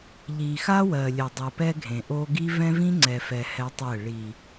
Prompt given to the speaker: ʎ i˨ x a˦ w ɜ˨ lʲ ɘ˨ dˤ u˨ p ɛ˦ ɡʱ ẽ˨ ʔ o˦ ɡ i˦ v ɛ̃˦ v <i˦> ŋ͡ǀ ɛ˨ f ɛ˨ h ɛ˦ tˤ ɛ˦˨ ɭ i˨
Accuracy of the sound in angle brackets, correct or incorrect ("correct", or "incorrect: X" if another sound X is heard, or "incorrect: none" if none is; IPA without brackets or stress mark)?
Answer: incorrect: ĩ˦